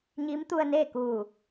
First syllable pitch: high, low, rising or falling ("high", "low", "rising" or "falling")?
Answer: rising